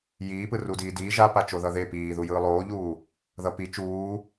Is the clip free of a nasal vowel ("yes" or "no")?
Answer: yes